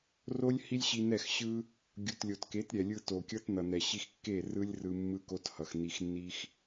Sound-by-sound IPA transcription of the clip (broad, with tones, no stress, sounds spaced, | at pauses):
r o˦ lʲ h i˦ lʲ ɕ i˧ n ɛ˦˨ x ɕ ɯ˦ | ɡʲ u˨ t lʲ o˨ t k e˨˦ t ɾʲ ɛ˨ lʲ ɯ˧ t o˨ kʲ ʌ˦ t n ʌ˨ n ɛ˨ ɕ i˧ x kː e˦˨ r ɯ˦ lʲ r ɯ˧ mː ɯ˦ k o˦ t h ʌ˨ x n i˧ x nː i˦ x